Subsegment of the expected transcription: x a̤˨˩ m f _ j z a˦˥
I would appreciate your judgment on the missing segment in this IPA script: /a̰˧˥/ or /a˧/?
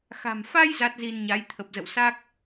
a˧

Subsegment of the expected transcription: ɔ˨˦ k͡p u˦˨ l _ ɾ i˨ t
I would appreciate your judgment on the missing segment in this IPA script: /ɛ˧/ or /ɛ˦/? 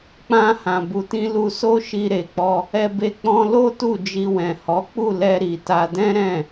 ɛ˧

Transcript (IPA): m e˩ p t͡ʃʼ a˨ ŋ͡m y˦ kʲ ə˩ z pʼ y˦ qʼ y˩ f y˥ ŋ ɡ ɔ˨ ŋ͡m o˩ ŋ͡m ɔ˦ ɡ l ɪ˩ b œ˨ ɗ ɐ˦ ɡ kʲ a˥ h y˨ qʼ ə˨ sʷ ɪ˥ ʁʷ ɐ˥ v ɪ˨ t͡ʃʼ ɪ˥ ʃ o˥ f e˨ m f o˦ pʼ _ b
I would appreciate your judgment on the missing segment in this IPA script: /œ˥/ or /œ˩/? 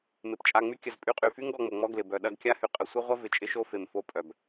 œ˩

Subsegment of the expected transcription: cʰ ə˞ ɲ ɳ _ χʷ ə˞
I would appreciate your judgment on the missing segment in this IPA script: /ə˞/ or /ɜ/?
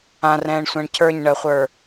ɜ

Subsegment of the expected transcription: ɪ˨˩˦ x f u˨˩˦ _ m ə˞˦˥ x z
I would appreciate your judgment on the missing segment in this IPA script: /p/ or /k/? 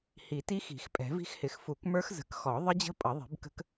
k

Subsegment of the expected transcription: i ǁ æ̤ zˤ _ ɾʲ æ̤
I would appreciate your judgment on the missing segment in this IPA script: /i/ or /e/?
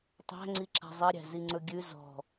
e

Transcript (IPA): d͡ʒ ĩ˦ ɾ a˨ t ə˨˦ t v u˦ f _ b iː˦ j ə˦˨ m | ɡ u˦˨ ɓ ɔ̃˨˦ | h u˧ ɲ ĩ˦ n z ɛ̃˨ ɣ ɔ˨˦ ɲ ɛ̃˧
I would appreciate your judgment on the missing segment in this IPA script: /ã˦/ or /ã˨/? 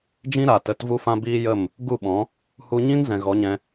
ã˦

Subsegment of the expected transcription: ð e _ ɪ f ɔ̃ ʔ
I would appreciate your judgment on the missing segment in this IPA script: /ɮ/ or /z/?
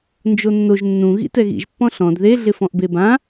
ɮ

